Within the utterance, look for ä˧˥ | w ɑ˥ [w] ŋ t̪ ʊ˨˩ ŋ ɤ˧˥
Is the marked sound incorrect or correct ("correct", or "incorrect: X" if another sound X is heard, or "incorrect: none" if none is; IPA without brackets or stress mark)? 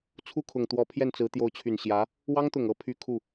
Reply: incorrect: none